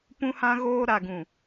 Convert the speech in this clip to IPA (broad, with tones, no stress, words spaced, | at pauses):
pũ˦hã˦ ɣoː˦ ɾa˨ɡũ˨